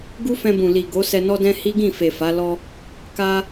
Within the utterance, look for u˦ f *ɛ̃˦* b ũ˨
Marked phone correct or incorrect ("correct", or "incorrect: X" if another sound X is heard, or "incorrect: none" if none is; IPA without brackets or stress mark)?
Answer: incorrect: ɛ̃˧